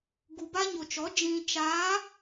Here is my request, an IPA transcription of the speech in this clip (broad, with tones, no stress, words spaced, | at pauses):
ɡu˨ba˦ɲo˨t͡ʃɔ˨˦ d͡ʒĩ˨t͡ʃaː˨˦